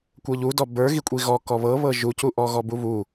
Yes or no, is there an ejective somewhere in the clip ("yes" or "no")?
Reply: yes